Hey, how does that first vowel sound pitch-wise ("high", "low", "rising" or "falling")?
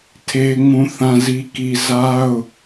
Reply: high